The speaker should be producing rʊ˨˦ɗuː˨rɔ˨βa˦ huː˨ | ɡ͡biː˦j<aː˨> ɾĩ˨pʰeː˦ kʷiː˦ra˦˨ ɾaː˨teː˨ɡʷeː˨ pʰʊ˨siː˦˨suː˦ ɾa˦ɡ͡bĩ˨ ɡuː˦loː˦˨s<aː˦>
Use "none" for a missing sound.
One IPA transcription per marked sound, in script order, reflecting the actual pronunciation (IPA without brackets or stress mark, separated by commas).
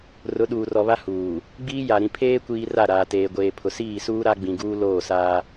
a˨, aː˦